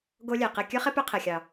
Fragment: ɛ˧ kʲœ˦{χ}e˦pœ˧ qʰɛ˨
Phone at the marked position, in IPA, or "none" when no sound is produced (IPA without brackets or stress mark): χ